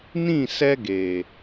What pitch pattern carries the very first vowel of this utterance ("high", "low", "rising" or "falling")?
falling